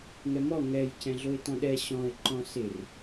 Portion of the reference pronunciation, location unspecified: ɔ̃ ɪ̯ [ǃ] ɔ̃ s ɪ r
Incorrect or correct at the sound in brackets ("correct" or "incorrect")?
correct